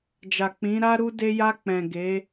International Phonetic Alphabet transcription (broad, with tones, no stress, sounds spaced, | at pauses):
d͡ʒ a˨ k͡p ĩ˨˦ ɾ a˦ ɾ u˧ d e˧ j a˧ k͡p ɛ̃˨ ɡ e˨˦